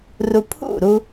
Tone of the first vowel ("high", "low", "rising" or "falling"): high